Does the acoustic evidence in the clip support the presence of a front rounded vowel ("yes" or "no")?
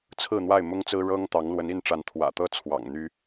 yes